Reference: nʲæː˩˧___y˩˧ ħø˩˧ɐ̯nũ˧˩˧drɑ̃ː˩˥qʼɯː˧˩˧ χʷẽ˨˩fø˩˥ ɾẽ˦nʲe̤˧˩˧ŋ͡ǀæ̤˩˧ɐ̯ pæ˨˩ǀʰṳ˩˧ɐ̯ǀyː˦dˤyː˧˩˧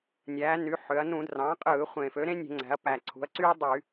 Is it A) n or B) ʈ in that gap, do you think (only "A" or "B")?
A